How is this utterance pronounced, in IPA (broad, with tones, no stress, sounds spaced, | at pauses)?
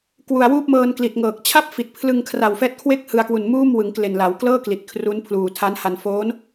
k w u˨˩ a̯ w uː˥˩ p̚ m ɤː˧ n k l i˨˩ t̚ ŋ ɤː˨˩ k̚ t͡ɕʰ a˥˩ p̚ f i˨˩ t̚ pʰ l ɯ˧ ŋ kʰ r a˨˩ w f ɛː˦˥ t̚ kʰ w e˥˩ k̚ h ɯ˧ a̯ k w u˨˩ n m uː˥˩ m w ɯ˩˦ ŋ k l e˨˩ n l a˩˦ w k l ɤː˥˩ k l i˨˩ t̚ kʰ r u˦˥ n pʰ l uː˨˩ tʰ a˦˥ n h a˧ n f oː˦˥ n